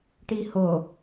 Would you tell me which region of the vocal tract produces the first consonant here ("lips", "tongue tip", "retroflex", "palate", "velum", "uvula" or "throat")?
retroflex